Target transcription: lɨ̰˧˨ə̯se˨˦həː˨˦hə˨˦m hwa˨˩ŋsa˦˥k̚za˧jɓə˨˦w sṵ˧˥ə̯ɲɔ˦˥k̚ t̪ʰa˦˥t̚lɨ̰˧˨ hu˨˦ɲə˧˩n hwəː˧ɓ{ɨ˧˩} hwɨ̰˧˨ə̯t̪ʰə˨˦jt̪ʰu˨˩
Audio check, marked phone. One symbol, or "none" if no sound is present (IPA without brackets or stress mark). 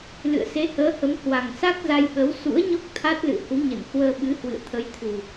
ɨ˨˦